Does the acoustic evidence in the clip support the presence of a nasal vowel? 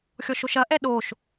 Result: no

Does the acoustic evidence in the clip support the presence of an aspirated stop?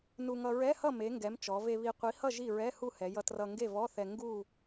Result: no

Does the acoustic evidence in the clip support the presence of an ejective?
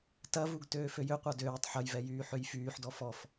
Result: no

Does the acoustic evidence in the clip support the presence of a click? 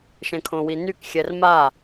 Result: no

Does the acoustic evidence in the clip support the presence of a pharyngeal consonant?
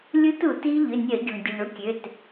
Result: no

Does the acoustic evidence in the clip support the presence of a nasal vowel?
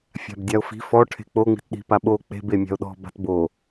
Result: no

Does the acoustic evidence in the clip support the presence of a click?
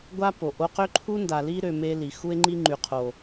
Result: yes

